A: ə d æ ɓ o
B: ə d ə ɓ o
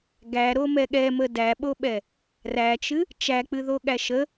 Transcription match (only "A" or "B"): A